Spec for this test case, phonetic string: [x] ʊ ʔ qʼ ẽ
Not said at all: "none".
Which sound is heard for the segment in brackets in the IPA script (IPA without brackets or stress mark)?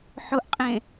ħ